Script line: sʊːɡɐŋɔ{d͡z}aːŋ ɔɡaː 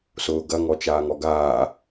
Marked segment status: incorrect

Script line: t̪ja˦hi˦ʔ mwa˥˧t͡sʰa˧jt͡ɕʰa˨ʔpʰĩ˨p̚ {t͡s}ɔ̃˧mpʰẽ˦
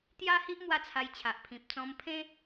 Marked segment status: correct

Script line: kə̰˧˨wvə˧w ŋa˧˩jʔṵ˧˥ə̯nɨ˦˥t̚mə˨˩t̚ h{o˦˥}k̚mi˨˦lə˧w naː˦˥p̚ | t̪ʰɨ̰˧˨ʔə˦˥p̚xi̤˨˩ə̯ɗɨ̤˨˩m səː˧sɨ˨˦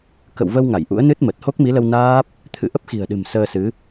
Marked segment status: correct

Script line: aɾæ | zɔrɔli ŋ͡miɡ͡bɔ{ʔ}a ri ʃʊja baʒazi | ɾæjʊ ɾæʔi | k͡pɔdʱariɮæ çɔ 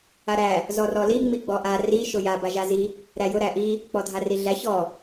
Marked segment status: correct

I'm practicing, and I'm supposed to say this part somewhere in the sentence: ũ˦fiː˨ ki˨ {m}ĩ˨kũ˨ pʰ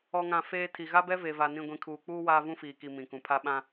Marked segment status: correct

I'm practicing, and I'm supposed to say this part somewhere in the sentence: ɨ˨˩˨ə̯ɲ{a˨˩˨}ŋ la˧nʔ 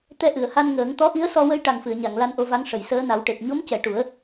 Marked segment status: correct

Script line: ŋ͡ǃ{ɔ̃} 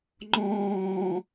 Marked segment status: incorrect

